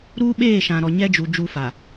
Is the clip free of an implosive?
no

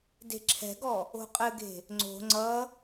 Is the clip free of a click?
no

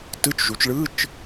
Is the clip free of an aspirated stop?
yes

